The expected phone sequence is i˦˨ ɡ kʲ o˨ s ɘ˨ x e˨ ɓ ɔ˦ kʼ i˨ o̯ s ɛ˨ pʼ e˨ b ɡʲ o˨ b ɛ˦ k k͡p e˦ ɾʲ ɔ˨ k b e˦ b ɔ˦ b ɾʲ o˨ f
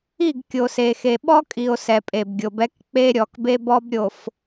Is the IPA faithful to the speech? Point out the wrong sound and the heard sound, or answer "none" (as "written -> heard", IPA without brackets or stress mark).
ɘ˨ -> e˨